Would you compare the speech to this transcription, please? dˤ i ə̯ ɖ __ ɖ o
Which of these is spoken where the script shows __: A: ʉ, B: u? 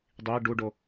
B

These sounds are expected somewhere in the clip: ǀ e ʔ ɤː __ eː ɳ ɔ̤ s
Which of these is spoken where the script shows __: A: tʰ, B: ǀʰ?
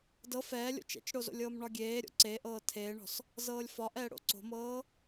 A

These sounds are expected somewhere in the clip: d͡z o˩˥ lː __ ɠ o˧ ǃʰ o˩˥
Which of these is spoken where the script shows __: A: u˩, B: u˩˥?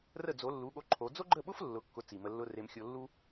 B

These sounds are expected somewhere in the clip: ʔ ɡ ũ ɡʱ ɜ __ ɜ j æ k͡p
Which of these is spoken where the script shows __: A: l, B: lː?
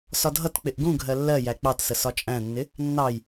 B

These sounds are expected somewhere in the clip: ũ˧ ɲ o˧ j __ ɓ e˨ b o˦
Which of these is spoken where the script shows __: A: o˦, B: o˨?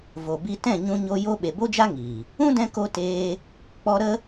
A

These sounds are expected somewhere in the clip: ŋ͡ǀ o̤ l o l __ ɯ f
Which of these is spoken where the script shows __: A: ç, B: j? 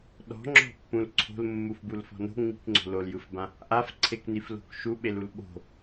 B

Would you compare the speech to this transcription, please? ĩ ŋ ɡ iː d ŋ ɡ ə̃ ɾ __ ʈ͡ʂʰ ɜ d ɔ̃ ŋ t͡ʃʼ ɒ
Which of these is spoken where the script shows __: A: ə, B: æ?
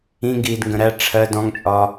B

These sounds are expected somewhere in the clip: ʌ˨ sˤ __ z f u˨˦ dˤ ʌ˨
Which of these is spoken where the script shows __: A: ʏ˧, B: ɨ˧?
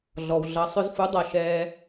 A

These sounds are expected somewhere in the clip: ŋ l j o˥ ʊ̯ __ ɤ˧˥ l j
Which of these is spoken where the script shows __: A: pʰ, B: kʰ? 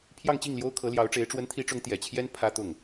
B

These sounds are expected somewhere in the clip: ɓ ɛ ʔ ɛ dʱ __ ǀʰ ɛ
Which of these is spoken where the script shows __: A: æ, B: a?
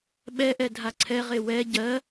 B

